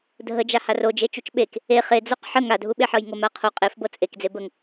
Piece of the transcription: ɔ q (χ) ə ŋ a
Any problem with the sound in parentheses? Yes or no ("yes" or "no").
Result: yes